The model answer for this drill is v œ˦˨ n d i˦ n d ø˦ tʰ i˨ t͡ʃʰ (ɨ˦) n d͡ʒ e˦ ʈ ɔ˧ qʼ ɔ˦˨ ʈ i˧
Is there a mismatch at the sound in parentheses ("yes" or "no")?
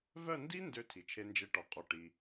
yes